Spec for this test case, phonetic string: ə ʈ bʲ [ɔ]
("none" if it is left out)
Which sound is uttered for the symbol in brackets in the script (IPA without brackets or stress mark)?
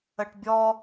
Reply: ɔ